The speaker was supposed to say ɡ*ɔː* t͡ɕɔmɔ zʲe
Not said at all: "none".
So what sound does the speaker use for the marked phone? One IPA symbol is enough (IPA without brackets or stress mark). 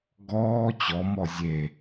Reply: ɔː